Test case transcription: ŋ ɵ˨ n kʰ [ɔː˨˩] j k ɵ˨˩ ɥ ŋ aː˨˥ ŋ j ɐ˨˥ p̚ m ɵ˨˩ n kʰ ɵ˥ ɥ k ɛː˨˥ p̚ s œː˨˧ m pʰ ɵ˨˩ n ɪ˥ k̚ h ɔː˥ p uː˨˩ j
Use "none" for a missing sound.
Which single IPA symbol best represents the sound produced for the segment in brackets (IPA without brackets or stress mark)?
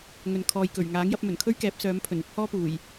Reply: ɔː˨